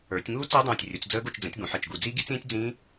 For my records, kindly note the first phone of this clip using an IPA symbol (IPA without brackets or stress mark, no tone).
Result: ə˞